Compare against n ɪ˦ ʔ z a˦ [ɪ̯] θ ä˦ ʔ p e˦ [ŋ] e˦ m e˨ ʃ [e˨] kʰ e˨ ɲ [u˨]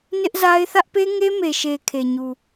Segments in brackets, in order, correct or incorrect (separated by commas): correct, correct, correct, correct